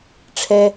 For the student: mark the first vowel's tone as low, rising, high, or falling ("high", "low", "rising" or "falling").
high